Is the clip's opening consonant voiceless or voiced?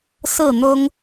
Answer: voiceless